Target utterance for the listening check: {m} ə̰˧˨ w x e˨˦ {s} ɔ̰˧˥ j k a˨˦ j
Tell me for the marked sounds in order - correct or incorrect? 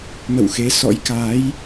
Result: correct, correct

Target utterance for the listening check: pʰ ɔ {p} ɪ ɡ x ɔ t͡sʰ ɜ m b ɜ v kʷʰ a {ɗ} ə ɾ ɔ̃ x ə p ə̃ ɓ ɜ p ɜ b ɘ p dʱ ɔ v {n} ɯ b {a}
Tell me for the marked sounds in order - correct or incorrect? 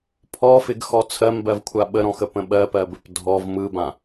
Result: incorrect, incorrect, incorrect, incorrect

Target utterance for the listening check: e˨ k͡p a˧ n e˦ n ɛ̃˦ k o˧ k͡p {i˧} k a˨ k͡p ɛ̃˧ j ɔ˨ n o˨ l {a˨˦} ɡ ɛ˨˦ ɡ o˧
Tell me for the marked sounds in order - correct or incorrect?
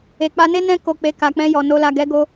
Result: incorrect, incorrect

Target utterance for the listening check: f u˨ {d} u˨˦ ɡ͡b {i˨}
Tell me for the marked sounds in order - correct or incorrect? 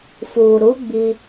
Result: incorrect, incorrect

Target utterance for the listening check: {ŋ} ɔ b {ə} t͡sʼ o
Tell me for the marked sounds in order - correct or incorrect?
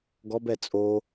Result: incorrect, incorrect

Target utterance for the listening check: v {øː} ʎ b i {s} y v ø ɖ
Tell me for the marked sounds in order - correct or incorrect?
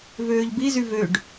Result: correct, incorrect

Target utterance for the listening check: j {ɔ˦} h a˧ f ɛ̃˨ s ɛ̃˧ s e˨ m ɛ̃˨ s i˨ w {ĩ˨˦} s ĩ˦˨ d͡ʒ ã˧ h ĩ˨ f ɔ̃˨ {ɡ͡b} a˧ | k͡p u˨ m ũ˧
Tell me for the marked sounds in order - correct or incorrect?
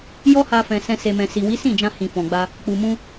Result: correct, incorrect, correct

